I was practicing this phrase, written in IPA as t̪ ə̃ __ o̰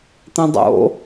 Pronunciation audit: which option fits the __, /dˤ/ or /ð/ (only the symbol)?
dˤ